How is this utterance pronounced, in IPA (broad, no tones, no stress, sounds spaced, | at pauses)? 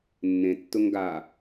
nː ẽ tː ʊ ŋ ɡ a